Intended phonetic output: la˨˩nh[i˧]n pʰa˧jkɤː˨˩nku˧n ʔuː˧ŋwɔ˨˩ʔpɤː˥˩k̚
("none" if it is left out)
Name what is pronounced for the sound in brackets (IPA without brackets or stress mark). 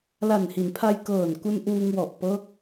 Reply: i˩˦